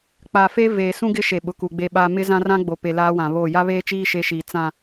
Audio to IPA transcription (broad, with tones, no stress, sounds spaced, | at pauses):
k͡p a˨ f e˦ v eː˨ s ũ˦ ɡ ɪ˦ ʃ e˨ ɓ ʊ˨ k u˨ ɡ͡b e˦ ɓ aː˦ m ɪ˦ z ã˦ r ã˦ ɡ͡b o˨ p e˨ l aː˦ w ã˨ β oː˦˨ j a˦ β eː˦ t͡ʃ iː˦ ʃ e˦ ʃ iː˨ t͡s ã˨